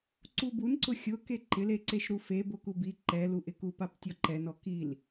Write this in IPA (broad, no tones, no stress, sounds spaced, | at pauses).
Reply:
ǀ u b u n ǀ ʊ xʲ ʊ k e ǃ ɪ l e ǀ e ʃ ɾ u f e b o k u b i ǃ ɛ l u ʔ ɪ k u p a p tʲ ɔ ǃ ɛ n ɔ k i l